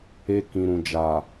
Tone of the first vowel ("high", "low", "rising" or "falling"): high